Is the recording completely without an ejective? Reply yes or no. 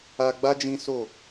yes